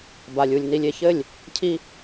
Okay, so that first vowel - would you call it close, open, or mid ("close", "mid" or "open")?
open